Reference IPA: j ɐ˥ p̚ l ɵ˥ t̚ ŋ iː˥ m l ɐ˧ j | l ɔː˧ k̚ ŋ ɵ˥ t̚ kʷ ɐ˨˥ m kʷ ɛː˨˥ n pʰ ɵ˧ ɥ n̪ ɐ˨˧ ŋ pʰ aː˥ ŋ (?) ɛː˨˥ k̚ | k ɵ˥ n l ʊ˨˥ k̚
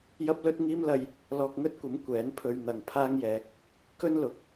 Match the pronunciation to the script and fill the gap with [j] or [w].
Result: j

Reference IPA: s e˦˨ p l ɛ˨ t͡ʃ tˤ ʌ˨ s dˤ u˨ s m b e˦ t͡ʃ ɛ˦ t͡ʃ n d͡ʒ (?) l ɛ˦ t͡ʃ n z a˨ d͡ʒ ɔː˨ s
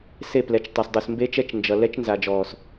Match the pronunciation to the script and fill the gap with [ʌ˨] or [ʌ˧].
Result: ʌ˨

